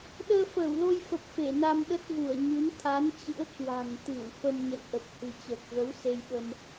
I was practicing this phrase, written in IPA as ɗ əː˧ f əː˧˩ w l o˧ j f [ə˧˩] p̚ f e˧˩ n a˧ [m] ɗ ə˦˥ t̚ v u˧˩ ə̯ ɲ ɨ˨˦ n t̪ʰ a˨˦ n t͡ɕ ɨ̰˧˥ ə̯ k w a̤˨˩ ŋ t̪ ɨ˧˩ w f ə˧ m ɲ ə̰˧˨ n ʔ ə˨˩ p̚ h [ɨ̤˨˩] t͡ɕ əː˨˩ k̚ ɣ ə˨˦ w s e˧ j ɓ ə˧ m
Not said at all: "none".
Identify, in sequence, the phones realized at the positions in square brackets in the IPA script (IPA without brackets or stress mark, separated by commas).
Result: ə˨˩, m, ɨ̤˨˩